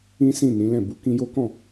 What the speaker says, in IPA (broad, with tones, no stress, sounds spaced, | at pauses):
ĩ˦ s ĩ˦˨ n ĩ˨˦ l ɛ̃˦˨ b u˨˦ k ĩ˧ j o˦ k ɔ̃˦˨